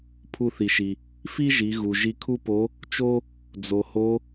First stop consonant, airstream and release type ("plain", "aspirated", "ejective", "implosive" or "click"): aspirated